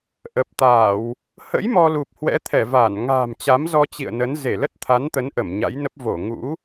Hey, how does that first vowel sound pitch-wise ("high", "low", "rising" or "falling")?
low